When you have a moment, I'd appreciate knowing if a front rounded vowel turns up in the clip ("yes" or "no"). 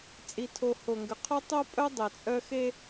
yes